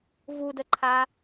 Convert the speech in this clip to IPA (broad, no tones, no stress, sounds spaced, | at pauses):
v u d ə ǃʰ a